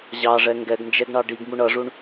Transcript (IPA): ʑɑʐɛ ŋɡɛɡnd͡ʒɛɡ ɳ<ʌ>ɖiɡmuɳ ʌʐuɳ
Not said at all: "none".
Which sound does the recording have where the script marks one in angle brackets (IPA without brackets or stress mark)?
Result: ɑ